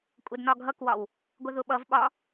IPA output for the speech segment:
kʷʼ ɜ d n ɒ ɡʱ ʌ k w ɒ w | ɡʷ ə ð ʊ ɓ ʌ v ɓ ɒ

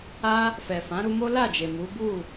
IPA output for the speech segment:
a˧ | f ɛ˨ f ã˨˦ ɾ u˧ m o˦ l a˦˨ d͡ʒ e˨ m u˨˦ b u˦˨

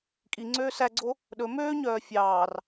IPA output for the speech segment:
kʼ i ŋ͡ǀ øː s æ ɡ͡ǀ o | ɗ ɵ m øː ɲ œː fʲ ɑː r

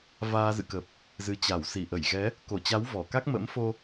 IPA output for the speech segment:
v aː˧ z ɨ̰˧˨ k ə˨˩ p̚ | z ɨ˧ t͡ɕ a˧˩ w s i˧˩ ʔ ə˧˩ j ɣ ɛ˨˦ | k o˧˩ t͡ɕ a˨˦ w v ɔ˧˩ k a˦˥ k̚ m ə̰˧˥ m f o˧

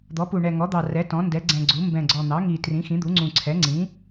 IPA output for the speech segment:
d̪ ɔ˩˥ p u˨˩ ɳ ɛ˨˩ ŋ ɔ˩˥ d̪ ɑ˨˩ r ɛ˩˥ t ɔ̃˩˥ n d ɛ˩˥ ɡ͡ǀ ɛ̃˨˩ ɡ͡ǀ u˩˥ m b ɛ̃˨˩ ɡ͡ǀ ɔ˨˩ n̪ ɑ˩˥ ŋ i˨˩ t r ĩ˩˥ x ĩ˩˥ d̪ u˩˥ ŋ͡ǀ ũ˨˩ ǀʰ ɛ˩˥ ŋ͡ǀ ĩ˩˥

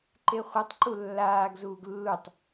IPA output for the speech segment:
ǃ e χʷ ɯ tˤ ǃ u lː aː ɡ z uː ɡ lː u tˤ

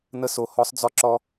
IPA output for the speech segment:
n ə˦ s o˧ h ɔ˦ sˤ d͡z ɔ˧ ǁ ɔ˧

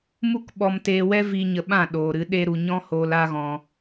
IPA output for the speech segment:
m u˦ k ɓ ɔ˧ m t eː˧ w ɛ˦ v iː˧ ɲ ə˧ ɓ ã˦˨ ɗ oː˨ ɾ ɨ˨˦ ɗ e˦ ɾ u˨ ɲ ɔ̃˦ h oː˧ l a˦ ɣ ɔ̃˧

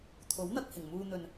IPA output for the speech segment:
t̪ʰ o˨˥ w n̪ ɐ˧ k̚ h ɪ˨˩ ŋ m uː˧ n̪ ɵ˨ n

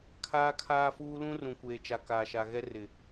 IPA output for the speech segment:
kʰ aː˦ kʰ aː˦ f uː˦ l ũ˦ r ũ˨ kʷ eː˨ t͡ʃ a˨ k aː˨ ʃ a˨ ɣ ɛ˦ r ɪ˨

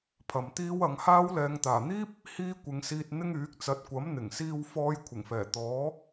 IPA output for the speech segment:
pʰ ɐ˨ m t̪ iː˥ w ɐ˨˧ ŋ h aː˥ w l ɛː˨ ŋ t̪ aː˨˩ n̪ iː˥ p̚ | h iː˥ kʷ ɪ˨˧ ŋ s iː˧ t̚ n̪ ɪ˥ ŋ yː˨˥ k̚ t͡s ɐ˨˥ t̚ kʷ ɐ˨˥ m n̪ ɪ˨˩ ŋ s iː˧ w f ɔː˧ j kʷʰ ɪ˨˩ ŋ f ɛː˨˩ t̪ ɔː˨˥

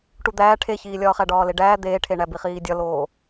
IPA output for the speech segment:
ʈ u d̪ æː ʈʰ e ç iː lʲ ɒː χ æ ɖ ɒː l e ɖ æː d̪ eː ʈʰ e ɳ æ b i χ iː dʲ ɒ l oː

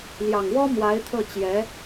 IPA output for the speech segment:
l j ɑ˨˩ ŋ w ɔ˥ m w a˧˥ ɪ̯ t̪ʰ ɤ˥˩ t͡ɕ j ɛ˧˥

